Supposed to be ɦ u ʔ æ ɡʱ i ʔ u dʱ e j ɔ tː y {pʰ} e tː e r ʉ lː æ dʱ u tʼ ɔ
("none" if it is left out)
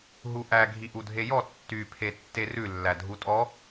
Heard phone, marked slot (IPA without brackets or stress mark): pʰ